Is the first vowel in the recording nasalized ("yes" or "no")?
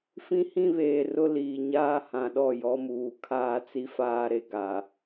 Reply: yes